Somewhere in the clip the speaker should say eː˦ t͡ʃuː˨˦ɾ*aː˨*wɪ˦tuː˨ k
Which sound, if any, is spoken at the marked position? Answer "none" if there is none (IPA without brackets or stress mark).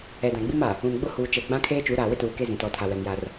aː˨